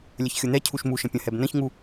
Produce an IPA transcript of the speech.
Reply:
lʲ ə ç xʲ ʊ n̪ ɛ cʰ u ʃ m u ʃ ə̃ pʲ ə̃ h ɛ b n ə̃ ç ŋ u

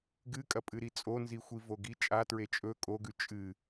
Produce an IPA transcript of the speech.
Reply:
ɡ ɨ kʼ ɐ pʼ ɨ ɾ i t͡sʼ o n z i xʷ i v o ɡ i t͡ʃʼ a t ɹ e t͡ʃʼ ɵ kʼ o ɡ ʉ t͡ʃʼ ɨ

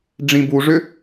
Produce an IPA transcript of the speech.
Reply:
ɖ͡ʐ ĩ b u ʐ ʏ

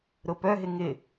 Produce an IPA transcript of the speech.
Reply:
ɾ ʊ p œ ɦ ɪ ŋ ɪ

